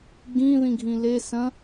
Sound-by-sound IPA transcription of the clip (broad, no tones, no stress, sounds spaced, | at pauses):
ɡ ĩ ð ĩ ɡʱ ĩ l e s ɐ̃